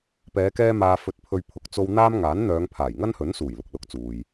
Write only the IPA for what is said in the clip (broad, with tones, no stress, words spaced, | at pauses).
pɛː˨˧kɛː˧ maː˧fɵ˧t̚pʰɵ˧ɥ pʰʊ˨k̚t͡so˧w n̪aː˥m ŋaː˨˥nn̪œː˨˧ŋ pʰaː˨˩jŋɐ˥nhɵ˨˥n suː˨˩jlʊ˨k̚lʊ˨˥k̚ t͡suː˨j